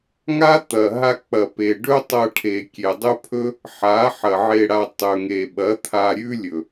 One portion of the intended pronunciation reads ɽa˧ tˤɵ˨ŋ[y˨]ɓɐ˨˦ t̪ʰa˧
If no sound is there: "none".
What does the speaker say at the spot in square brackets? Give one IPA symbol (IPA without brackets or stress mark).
e˨